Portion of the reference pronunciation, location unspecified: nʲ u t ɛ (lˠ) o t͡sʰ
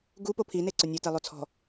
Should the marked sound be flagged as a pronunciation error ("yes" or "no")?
no